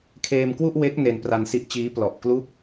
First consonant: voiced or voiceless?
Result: voiceless